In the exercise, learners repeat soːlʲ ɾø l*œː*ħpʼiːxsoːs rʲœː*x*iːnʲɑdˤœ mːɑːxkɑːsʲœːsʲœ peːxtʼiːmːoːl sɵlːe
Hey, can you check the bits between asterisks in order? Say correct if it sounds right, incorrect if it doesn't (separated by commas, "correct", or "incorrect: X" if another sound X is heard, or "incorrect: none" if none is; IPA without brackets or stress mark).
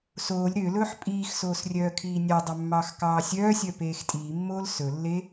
incorrect: ɵː, incorrect: kʰ